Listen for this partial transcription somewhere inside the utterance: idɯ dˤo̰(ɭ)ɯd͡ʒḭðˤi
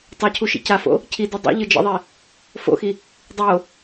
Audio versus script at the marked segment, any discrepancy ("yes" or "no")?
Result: yes